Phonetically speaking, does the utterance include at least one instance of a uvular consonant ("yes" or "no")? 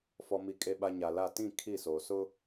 no